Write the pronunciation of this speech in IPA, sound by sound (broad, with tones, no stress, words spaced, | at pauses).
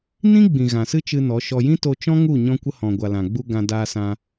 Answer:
nĩ˦ɡ͡bĩ˨ ɣã˨sɨ˦t͡ʃɨ˧ nɔ˨˦ʃɔ˧ jĩ˦to˧t͡ʃɔ̃˦ŋu˦˨ ɲɔ̃˧kʷə˧hɔ̃˨ɡʷa˨ lã˨ɡ͡bu˧ ɡã˧daː˧sã˧